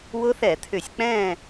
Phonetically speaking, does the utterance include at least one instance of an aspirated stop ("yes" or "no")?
yes